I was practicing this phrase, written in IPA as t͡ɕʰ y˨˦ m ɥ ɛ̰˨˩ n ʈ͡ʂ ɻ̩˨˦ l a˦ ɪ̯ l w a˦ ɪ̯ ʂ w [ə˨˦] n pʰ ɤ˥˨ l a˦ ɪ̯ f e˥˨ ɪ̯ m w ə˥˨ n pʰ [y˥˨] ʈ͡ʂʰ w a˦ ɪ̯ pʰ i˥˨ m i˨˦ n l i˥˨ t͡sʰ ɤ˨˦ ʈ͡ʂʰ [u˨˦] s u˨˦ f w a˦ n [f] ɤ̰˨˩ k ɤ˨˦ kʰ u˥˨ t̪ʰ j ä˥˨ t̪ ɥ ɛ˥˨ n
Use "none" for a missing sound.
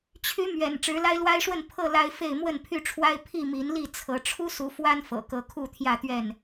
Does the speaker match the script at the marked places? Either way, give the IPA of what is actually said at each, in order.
ə˥˨, y˥˨, u˦, f

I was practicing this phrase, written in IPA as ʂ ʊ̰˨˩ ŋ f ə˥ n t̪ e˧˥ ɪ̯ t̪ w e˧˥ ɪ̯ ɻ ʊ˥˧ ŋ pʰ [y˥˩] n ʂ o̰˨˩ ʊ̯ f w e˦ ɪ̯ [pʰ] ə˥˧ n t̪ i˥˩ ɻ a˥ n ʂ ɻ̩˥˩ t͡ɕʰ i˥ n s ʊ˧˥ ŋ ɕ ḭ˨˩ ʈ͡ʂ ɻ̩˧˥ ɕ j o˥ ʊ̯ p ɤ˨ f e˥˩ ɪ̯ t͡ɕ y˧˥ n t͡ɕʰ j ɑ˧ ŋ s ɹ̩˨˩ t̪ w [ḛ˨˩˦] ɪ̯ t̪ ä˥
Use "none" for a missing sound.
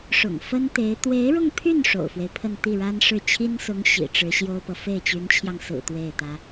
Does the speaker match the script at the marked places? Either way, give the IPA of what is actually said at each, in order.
y˥˩, pʰ, e˥˩

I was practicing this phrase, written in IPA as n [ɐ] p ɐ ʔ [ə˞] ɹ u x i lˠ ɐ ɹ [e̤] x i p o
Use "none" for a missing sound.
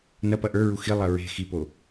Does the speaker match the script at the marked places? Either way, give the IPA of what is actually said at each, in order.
ɐ, ə˞, e̤

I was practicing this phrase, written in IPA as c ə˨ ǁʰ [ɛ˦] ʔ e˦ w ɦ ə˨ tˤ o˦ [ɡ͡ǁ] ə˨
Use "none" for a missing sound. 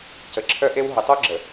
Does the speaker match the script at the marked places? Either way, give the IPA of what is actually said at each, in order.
œ˦, ɡ͡ǁ

